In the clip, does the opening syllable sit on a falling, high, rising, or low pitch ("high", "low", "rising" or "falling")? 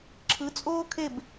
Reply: rising